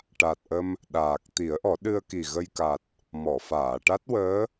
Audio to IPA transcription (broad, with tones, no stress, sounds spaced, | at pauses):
ʈ a˨˩ t̚ ʔ ə˧ m | ɗ aː˨˩ k̚ t̪ i˨˩˦ ə̯ ʔ ɔ˨˩˦ ɗ ɨ˧ ə̯ k i˨˩ ɣ ə˧ j k a˨˩ t̚ | m ɔ˨˩˨ f aː˨˩˨ ʈ a˦˥ t̚ w əː˧˥